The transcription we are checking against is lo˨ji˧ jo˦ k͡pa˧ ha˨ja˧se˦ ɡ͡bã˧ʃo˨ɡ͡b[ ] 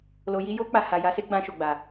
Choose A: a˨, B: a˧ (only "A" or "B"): A